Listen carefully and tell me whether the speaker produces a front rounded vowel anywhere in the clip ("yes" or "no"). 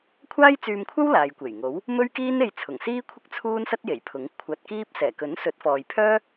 yes